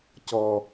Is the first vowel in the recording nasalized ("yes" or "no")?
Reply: no